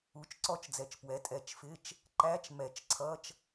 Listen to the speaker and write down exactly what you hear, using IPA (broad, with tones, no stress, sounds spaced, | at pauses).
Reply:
u˩˥ t͡ʃ ǀ ɔ˦˨ t͡ʃ d͡z ɛ˩˥ t͡ʃ p w ɛ˩˥ tʼ ɛ˨˩˦ t͡ʃ f ɪ˧˥˧ t͡ʃ | ǃ æ˧˥˧ t͡ʃ m ɛ˨˩˦ t͡ʃ ǀʰ ʌ˧˥˧ t͡ʃ